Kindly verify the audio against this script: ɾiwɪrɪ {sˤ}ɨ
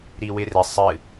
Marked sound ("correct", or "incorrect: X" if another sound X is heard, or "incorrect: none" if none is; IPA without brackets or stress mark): correct